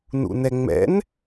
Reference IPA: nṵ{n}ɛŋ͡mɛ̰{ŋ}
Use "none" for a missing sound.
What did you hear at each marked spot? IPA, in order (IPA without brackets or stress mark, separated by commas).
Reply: n, n